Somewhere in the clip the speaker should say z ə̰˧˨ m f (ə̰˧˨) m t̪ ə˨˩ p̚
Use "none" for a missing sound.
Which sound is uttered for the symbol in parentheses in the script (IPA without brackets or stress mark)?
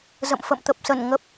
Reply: ə̰˧˨